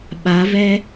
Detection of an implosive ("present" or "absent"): present